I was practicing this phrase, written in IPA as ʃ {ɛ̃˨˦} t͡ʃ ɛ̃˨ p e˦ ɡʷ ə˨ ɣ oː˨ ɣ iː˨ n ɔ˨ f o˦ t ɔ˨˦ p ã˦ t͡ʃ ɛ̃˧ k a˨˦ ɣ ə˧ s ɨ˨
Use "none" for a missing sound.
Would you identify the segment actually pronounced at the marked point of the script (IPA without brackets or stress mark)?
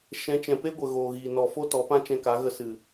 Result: ɛ̃˨˦